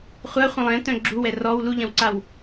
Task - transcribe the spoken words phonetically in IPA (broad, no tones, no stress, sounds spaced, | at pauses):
χʷ a χʷ ə̃ lˠ ɛ̃ t œ̃ ɡ͡ǁ u w ɛ r ɔ w l u ʎ ɐ̃ w ǀ a w